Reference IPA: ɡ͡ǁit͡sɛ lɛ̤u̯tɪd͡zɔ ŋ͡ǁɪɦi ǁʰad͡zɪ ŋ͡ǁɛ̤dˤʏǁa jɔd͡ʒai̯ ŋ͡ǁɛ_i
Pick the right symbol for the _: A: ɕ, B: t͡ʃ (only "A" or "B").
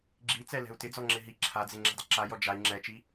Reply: B